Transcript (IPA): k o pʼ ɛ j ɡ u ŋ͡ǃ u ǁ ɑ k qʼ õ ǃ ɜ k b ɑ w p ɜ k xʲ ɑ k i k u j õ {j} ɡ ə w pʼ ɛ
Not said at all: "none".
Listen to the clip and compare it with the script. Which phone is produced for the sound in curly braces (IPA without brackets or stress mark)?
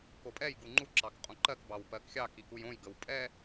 j